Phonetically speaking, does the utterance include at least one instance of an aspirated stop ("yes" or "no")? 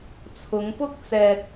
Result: yes